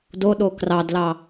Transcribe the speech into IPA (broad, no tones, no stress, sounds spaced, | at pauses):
d o ɗ o k r ɑ d l ɑ